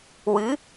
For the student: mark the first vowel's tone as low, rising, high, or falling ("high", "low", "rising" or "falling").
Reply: rising